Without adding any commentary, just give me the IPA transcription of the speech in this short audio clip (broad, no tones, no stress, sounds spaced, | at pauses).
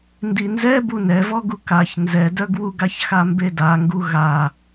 n d i n z ɛ b u n ɛ v ɔ ɡ u k a ç n z ɛ d œ ɡ w u ɡ a ç x a m b e d a ŋ ɡ u ɣ a